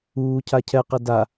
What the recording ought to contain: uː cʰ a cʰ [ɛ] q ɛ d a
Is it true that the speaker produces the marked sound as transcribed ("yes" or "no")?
yes